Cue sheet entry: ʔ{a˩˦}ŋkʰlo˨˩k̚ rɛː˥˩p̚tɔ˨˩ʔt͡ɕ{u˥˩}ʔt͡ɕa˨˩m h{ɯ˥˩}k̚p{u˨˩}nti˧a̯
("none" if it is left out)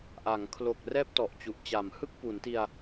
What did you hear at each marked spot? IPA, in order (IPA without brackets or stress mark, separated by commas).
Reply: a˩˦, u˨˩, ɯ˥˩, u˩˦